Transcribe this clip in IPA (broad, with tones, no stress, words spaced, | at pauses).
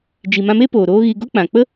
d͡ʒi˨mã˧me˦ poː˨ɾoː˦ɣi˧ ɡo˦k͡pã˨k͡pə˦